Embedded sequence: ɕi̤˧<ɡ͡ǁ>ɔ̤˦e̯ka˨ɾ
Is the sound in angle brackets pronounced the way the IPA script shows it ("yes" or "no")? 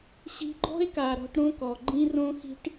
no